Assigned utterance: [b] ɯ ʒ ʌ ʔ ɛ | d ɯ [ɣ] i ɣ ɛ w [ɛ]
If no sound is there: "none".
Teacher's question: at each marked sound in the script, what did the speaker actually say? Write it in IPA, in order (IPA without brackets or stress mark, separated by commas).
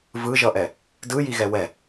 v, j, ɛ